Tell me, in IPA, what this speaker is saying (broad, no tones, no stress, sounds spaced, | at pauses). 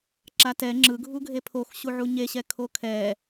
ǁ a t ɛ ŋ͡ǁ ɯ ɡʱ u ɡʱ e pʰ o x ɕ u ʕ u ɲ e ɕ ɛ kʰ o kʰ ɛ